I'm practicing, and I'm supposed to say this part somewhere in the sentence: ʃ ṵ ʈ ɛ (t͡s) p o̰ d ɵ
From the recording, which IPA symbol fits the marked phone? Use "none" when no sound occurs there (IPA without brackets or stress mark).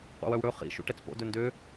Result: t͡s